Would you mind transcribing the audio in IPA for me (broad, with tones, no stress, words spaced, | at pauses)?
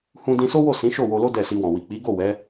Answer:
hũ˧dĩ˧so˦wo˦˨ sĩ˨˦ʃo˦˨ wo˧lo˦ dɛ˦˨si˧wɔ̃˨ wi˨k͡pi˨˦ɡo˦˨ wɛ˨˦